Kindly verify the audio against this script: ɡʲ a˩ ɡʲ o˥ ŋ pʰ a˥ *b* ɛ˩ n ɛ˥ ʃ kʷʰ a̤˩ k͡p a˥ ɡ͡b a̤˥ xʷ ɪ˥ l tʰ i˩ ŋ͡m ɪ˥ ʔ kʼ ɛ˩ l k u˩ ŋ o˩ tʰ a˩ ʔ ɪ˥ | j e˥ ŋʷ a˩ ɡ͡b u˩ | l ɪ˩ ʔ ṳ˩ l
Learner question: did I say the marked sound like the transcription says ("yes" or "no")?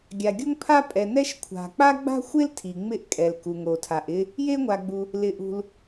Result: no